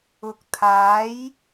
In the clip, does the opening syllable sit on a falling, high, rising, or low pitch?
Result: rising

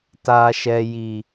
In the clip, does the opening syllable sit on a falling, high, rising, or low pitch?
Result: low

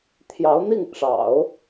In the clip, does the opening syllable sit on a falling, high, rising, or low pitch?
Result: rising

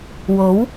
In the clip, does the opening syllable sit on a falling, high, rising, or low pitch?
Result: rising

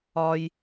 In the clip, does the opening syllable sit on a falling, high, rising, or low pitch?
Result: high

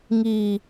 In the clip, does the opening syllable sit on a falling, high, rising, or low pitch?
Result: low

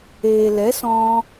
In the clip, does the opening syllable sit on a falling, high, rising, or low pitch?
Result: low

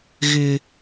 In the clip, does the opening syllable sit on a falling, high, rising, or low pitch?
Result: high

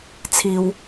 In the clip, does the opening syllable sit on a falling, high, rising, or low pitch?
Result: low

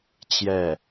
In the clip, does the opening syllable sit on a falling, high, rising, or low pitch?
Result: falling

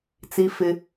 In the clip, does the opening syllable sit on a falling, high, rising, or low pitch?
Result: high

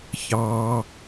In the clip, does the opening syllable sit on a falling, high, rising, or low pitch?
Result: low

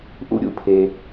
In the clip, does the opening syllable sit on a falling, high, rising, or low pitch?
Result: high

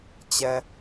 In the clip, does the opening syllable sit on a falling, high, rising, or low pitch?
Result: low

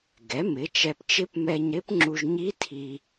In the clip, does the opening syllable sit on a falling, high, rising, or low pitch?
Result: rising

